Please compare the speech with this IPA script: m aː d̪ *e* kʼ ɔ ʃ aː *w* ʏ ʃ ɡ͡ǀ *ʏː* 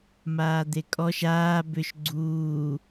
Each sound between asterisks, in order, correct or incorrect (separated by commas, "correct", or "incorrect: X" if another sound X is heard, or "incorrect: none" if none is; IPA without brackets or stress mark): correct, incorrect: b, incorrect: uː